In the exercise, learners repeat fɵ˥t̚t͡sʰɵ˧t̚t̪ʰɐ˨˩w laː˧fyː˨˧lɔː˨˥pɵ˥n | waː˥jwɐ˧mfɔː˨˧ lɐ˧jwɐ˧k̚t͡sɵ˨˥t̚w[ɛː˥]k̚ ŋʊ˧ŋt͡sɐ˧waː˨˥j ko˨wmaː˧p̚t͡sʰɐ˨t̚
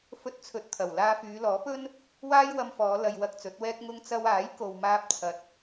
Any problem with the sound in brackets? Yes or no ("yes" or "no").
no